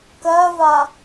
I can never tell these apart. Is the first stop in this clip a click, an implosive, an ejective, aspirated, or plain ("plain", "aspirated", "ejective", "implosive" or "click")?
plain